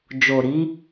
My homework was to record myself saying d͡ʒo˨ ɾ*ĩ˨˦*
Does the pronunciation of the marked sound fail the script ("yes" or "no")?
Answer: yes